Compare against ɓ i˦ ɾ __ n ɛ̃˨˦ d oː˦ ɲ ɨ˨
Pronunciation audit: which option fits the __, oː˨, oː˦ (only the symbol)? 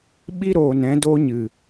oː˨